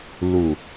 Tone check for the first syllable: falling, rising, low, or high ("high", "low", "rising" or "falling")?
low